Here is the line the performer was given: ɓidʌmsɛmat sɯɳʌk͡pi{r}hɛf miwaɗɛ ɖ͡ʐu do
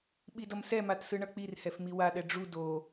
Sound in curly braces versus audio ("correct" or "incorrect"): correct